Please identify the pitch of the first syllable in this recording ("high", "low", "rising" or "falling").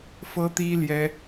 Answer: high